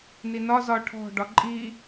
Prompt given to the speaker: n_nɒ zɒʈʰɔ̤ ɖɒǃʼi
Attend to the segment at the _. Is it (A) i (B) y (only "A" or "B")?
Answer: A